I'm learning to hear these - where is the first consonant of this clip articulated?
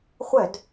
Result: uvula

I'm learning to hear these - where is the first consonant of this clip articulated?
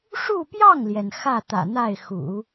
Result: retroflex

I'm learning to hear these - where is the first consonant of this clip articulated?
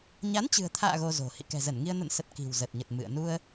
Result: palate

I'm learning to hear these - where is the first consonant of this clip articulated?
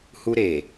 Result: throat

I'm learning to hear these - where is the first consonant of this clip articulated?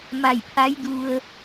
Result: lips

